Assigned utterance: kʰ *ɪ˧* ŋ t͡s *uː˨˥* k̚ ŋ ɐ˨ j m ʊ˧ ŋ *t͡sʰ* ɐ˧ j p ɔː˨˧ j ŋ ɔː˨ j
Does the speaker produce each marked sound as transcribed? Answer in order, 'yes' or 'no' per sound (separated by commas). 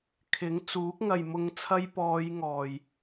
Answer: no, yes, yes